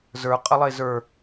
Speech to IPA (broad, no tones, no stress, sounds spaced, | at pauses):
z ə˞ qʼ ə lˠ e z ə˞